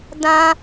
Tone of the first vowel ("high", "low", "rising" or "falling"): high